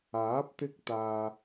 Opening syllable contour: rising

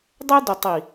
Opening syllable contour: high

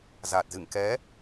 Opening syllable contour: low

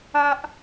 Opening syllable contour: high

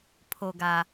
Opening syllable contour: low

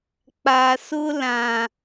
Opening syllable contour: low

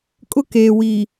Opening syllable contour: high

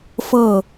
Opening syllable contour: falling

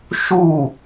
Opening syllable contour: falling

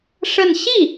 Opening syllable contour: falling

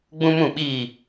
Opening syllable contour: high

